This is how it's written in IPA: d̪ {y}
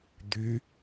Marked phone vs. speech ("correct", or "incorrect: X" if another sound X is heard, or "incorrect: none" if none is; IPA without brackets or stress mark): correct